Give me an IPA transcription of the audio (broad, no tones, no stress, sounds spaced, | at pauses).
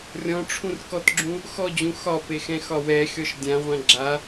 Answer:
rʲ ɔ̃ ʈ͡ʂʰ ũ r k ɔ t ɡ͡ǁ ũ | x ɔ d͡ʑ ũ x ɒ p e x ɛ̃ x ɒ w ɛ xʲ ɔ ʃ dʲ ã ʁʷ ã ɡ͡ǁ a